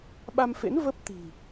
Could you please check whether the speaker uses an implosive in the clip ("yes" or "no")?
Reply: yes